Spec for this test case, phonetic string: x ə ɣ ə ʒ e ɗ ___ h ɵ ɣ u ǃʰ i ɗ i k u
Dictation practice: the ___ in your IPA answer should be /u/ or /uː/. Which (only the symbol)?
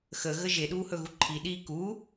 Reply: uː